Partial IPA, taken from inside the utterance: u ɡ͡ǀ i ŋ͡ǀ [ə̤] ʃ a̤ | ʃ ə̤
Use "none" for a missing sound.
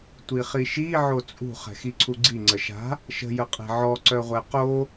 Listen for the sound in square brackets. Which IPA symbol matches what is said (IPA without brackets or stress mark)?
ə